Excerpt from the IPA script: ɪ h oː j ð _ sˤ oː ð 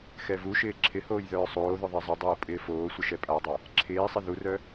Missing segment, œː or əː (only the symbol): œː